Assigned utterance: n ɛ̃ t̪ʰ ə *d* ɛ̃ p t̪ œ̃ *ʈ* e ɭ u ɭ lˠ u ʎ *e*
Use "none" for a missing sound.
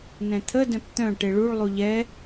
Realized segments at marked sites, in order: d, ʈ, ɛ

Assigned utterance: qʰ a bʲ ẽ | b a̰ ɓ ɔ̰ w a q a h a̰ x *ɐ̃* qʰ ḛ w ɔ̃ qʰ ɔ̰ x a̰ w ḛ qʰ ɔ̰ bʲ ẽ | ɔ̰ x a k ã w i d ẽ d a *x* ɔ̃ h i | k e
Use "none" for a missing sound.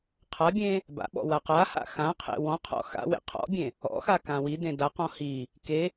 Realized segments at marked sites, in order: ã, q

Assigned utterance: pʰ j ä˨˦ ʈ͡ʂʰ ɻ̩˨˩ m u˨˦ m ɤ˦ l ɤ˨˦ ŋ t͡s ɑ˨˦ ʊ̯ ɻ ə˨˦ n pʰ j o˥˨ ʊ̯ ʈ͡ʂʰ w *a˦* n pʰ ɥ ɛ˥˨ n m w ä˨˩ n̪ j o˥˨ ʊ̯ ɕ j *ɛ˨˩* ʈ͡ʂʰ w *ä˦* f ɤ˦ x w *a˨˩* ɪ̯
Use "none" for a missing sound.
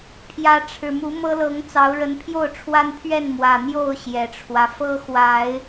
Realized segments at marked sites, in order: a˦, ɛ˨˩, ä˦, a˨˦

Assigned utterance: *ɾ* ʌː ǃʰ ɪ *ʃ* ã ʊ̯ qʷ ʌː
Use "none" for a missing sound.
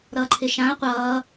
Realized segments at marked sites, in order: ɾ, ʃ

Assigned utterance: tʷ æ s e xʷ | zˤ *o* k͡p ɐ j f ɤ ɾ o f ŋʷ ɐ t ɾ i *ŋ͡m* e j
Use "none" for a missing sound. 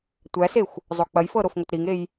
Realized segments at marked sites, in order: o, ŋ

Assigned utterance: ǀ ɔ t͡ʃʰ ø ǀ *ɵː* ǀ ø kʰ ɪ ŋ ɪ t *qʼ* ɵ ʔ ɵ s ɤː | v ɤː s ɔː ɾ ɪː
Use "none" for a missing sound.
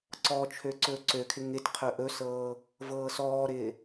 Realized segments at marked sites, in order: ɵː, qʰ

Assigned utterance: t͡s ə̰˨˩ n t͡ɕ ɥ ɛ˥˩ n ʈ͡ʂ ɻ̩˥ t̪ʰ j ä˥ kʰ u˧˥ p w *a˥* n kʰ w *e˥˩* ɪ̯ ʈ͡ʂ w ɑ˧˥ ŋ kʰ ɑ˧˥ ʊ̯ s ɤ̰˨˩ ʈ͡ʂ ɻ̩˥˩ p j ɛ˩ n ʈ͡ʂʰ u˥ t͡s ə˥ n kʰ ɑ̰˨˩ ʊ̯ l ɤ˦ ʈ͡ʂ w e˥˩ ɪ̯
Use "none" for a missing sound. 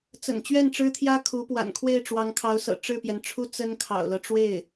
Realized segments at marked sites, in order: a̰˨˩, e˥˩

